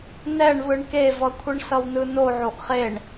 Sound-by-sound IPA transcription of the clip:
n ɛ ɳ β ɯ ɳ k e v ʌ kʷʰ ɯ ɳ s ʌ w n ɯ n o ʕ o ʔ χ e ɳ

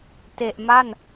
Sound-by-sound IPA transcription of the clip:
t e˨˩ ʔ m a˥˩ n

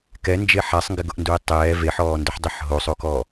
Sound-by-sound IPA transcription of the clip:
k ɛ n d͡ʒ e ħ a sˤ ŋ ɡ ɪ ɡ ʊ ʔ n d u e̯ tˤ ɛː v e ħ ɔː n d ʊ ħ dˤ e ħ ɦ o sˤ o k ɔ

